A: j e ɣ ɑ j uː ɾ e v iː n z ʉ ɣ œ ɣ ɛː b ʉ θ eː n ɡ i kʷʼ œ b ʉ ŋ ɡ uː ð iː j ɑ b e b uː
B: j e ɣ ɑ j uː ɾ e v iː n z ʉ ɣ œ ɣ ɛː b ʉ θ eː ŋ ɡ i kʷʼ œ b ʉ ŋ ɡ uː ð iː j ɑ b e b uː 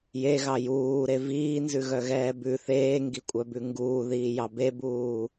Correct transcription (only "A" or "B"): B